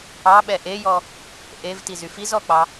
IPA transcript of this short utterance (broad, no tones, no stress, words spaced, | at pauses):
ɑɓɛ ʔejɔ | ʔevtizy fizɔk͡pɑ